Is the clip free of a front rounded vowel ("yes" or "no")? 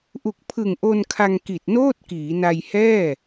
yes